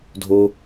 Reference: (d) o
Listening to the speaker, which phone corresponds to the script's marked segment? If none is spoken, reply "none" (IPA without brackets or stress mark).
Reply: dʱ